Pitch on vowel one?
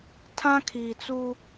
high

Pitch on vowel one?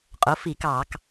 rising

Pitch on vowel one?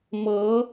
rising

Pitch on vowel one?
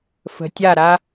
low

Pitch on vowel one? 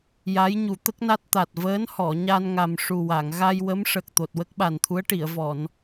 rising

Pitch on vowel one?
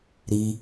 high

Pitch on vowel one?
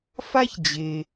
high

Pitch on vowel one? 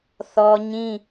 high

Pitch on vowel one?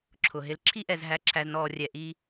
low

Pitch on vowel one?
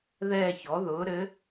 falling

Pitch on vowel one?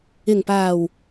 low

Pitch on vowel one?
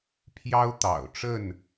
high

